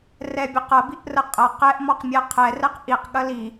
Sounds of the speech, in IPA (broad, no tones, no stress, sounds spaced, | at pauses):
r ɛ bʲ ɒ q ɐ b i ʔ r ə qʼ ɐ q ɛ ʔ m ɔ q mʲ ɛ qʰ ɛ r ɛ q ʔ i q ɠ ɐ l i